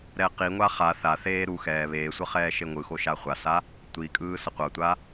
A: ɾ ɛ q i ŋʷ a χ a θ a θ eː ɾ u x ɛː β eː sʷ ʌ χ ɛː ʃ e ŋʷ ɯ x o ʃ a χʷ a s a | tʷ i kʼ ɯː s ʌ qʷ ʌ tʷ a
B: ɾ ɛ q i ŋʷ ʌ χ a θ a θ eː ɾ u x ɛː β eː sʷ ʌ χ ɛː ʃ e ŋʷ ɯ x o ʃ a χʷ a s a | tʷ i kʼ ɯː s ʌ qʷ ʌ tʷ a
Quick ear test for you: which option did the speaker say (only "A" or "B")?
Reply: A